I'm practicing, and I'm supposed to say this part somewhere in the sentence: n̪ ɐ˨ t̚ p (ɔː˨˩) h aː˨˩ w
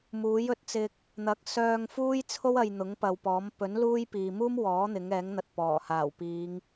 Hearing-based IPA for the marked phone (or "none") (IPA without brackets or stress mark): ɔː˨˩